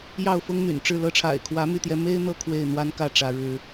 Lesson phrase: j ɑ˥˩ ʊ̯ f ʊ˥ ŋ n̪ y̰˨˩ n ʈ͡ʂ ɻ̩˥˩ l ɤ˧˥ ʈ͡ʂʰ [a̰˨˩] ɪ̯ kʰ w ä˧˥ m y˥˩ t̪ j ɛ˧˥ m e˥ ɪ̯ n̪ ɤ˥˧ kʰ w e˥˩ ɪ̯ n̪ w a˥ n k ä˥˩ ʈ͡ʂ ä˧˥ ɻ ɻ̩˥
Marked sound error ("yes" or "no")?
no